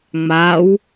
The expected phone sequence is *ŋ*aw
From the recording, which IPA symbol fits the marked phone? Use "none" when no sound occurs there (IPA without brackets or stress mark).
ŋ͡m